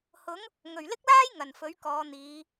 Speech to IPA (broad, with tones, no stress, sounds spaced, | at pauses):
h ʊ˨˥ ŋ | ŋ ɵ˨˩ ɥ l ɪ˥ k̚ l aː˥ j ŋ ɐ˨˩ n f ɵ˨˥ ɥ k ɔː˨˧ n̪ iː˨˧